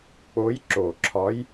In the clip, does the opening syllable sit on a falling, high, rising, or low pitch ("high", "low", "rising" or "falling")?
rising